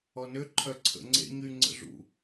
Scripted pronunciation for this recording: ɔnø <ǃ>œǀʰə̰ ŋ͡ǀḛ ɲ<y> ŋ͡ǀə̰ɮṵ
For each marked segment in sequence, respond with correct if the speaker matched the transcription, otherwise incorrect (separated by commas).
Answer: incorrect, correct